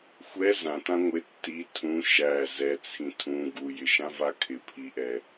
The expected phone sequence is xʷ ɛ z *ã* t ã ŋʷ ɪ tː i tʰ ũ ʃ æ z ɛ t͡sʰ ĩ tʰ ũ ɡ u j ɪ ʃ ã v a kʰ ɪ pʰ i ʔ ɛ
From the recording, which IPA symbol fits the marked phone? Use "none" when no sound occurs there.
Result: ã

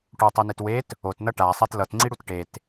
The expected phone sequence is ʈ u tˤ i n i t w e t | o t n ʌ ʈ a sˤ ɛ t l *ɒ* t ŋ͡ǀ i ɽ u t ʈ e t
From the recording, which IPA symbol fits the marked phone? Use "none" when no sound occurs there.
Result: ʌ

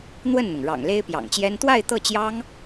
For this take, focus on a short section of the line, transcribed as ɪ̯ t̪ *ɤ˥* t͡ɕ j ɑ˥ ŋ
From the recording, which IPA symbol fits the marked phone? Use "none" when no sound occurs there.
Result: ɤ˥˩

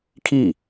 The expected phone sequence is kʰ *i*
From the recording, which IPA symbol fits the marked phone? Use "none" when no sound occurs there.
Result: i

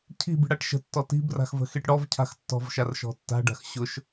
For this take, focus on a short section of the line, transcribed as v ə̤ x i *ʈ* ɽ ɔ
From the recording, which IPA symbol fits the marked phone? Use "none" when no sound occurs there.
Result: ʈ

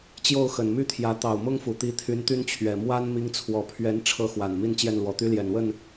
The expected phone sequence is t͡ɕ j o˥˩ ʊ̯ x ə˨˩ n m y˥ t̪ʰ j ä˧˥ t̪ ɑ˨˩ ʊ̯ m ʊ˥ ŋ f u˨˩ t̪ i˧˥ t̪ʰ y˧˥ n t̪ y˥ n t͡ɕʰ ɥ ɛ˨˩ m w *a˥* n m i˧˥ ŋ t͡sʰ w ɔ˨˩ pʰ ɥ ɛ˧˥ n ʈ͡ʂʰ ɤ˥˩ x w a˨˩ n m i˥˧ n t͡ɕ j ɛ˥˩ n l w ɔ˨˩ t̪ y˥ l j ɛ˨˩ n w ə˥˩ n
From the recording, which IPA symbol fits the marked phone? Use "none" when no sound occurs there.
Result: a˥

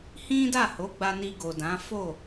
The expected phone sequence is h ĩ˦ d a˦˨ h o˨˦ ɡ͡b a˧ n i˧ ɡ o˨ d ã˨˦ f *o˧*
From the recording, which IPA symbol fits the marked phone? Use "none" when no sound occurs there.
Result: o˦˨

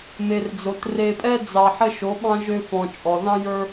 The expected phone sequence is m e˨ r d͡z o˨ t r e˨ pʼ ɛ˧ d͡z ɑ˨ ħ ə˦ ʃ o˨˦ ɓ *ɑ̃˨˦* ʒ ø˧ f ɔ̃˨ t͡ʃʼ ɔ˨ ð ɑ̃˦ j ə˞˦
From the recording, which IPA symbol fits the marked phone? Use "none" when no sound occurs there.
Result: ɑ̃˦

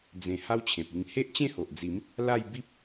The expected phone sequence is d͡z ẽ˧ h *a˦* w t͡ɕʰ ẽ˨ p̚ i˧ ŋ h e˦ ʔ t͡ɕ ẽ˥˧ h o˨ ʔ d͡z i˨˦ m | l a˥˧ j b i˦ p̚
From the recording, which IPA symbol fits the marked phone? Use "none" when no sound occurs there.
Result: a˦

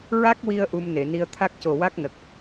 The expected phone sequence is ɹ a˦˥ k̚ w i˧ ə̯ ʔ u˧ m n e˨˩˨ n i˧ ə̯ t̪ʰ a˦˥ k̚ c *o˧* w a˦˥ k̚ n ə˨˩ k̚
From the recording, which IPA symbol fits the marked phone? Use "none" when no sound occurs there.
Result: o˨˩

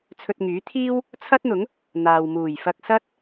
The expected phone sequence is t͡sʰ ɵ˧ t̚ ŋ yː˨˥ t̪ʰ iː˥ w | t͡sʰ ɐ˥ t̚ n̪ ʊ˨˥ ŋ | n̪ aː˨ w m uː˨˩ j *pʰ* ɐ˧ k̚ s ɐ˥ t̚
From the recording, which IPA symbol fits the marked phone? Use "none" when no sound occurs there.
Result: f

